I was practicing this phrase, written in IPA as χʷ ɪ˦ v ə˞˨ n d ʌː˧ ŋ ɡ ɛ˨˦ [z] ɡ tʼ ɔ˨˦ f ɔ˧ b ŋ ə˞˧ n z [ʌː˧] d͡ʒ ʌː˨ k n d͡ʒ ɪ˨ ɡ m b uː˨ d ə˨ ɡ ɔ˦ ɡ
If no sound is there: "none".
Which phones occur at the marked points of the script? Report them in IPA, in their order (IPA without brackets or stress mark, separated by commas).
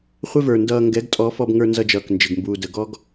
none, ʌ˧